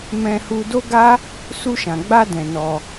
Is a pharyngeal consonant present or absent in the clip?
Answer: absent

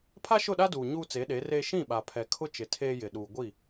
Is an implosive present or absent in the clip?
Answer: present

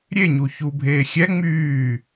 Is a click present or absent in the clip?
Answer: absent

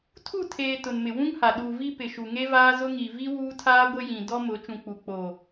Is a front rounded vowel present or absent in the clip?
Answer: absent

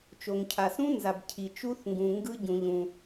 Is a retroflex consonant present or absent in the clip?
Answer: absent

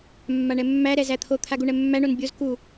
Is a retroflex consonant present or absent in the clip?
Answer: present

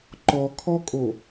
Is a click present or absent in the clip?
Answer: present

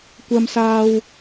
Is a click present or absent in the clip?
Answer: absent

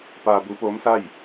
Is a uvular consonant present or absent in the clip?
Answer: absent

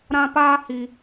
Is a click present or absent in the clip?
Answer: absent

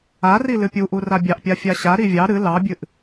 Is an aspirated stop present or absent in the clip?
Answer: absent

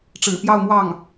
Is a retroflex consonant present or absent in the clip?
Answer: present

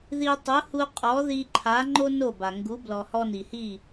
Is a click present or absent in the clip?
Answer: present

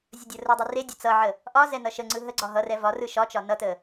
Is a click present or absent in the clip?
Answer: present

